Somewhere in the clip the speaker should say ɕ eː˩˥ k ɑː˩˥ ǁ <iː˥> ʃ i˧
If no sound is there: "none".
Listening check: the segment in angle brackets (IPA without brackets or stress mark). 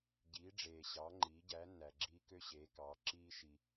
iː˥